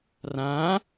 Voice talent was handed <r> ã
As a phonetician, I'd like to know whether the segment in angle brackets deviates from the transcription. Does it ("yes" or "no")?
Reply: no